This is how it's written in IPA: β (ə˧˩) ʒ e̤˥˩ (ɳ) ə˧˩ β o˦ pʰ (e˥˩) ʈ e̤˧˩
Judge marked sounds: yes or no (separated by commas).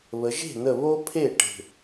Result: no, no, yes